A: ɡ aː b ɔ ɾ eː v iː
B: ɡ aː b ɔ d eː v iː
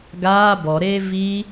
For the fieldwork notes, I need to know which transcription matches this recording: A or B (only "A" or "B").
A